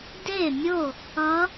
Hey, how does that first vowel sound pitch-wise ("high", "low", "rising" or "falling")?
falling